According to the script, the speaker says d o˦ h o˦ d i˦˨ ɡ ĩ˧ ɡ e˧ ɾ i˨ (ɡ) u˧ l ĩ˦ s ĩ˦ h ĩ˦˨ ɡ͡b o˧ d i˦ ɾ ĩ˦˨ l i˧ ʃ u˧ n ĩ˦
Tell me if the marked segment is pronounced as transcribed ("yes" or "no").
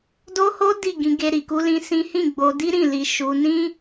no